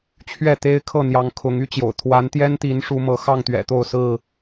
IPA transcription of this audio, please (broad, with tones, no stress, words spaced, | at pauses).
t͡ɕʰɥɛ˥˨t̪e˦ɪ̯kʰɤ˥˨ n̪jɑ˨˦ŋ kʰʊ˨˦ŋ y˦t͡ɕjo̰˨˩ʊ̯ t̪ʰwa˨˦nt̪jɛ˦nt̪i˨˦n ʂu˨˦mɤ˨˦xɑ˥˨ŋ t̪ɥɛ̰˨˩t̪o˥˨ʊ̯ sɹ̩˥˨